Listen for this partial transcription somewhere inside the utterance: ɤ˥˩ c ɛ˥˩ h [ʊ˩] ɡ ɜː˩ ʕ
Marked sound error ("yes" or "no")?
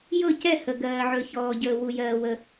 yes